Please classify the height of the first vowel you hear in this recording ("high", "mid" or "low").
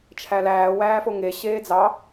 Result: low